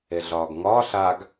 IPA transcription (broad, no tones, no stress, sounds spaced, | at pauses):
e ɮ ɒː ɡ ŋ ɒː ɬ a ɡ